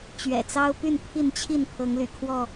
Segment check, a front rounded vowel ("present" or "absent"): present